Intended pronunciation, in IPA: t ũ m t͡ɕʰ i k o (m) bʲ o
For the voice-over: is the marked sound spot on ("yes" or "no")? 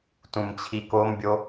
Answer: yes